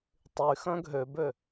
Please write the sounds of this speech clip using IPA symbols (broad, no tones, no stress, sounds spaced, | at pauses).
tˤ y x œ̃ ɡʱ ø b ø